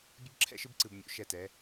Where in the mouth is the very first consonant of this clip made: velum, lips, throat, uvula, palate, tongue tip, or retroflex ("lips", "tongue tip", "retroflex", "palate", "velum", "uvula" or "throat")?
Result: lips